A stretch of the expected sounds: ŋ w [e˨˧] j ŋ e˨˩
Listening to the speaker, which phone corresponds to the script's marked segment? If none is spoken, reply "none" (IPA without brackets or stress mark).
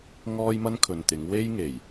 e˥